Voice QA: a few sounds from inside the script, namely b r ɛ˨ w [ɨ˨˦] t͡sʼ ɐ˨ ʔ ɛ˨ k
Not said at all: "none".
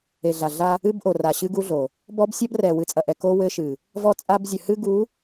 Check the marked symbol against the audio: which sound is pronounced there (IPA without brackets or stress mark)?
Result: ɨ˨˦